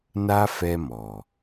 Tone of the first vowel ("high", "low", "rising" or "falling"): high